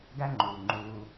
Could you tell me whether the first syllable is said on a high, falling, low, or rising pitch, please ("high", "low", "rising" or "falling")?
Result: high